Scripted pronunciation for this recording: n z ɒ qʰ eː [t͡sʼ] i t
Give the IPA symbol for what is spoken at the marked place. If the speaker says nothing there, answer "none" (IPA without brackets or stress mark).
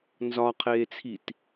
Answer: t͡sʰ